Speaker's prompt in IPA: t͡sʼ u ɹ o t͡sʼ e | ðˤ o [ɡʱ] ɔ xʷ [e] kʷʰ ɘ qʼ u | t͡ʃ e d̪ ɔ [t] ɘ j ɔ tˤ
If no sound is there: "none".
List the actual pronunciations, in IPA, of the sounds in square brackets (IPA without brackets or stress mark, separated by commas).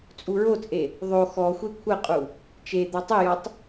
x, e, tˤ